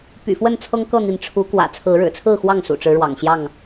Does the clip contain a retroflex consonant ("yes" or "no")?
yes